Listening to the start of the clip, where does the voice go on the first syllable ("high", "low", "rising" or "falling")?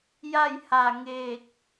falling